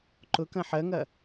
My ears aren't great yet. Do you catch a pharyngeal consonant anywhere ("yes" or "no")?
yes